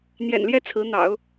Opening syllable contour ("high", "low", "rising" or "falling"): low